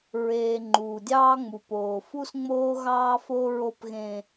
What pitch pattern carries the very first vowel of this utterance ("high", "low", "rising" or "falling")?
low